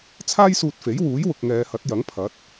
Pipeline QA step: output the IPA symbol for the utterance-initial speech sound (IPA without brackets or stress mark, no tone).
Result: t͡sʰ